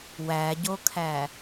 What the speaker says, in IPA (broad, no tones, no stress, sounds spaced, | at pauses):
w æ ɟ o kʰ æ